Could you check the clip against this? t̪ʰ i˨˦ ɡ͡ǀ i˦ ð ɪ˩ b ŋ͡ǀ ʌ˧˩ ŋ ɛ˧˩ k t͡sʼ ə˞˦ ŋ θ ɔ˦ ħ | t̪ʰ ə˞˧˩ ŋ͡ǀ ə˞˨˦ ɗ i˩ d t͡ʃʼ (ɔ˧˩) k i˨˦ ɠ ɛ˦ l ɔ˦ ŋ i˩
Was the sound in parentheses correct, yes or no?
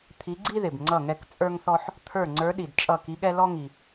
no